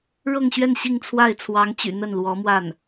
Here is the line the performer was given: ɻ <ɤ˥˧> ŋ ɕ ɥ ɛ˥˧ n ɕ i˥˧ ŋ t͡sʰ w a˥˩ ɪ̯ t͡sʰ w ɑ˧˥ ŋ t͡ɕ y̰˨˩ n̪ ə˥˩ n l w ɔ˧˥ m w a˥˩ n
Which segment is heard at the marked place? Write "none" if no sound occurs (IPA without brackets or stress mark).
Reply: ɤ˥˧